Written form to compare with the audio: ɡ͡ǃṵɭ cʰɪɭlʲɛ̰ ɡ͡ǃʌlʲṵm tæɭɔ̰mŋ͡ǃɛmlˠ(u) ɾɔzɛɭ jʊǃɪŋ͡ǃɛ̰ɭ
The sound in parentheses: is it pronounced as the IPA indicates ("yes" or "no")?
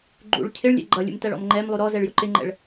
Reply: yes